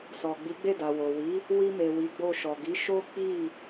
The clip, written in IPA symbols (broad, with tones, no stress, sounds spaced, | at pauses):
s ɔ˨ ɡ͡b i˨˦ ɡ͡b e˦˨ d a˨ w o˨ w i˨˦ | w i˧ m e˨ w i˨˦ ɡ͡b o˧ ʃ ɔ˨ ɡ i˨˦ ʃ o˦ k͡p i˦˨